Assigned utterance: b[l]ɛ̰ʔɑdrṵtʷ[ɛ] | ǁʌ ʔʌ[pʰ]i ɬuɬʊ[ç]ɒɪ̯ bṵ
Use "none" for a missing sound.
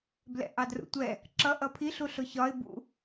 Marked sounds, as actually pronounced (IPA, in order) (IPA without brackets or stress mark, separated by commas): l, ɛ, pʰ, ç